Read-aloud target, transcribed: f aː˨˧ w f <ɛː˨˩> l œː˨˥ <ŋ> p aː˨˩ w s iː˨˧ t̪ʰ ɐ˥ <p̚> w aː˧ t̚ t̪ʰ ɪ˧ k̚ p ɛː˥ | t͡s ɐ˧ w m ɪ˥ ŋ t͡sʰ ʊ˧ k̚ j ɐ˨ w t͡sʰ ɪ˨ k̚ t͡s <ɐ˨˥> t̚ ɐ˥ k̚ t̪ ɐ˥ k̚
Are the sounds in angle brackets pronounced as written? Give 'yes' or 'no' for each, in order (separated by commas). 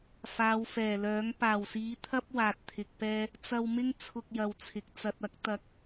yes, yes, yes, no